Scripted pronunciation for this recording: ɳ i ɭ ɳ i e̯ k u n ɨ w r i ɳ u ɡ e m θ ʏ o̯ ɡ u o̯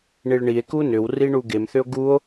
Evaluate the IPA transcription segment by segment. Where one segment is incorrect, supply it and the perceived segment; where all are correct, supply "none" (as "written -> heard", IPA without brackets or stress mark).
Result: ɨ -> ʏ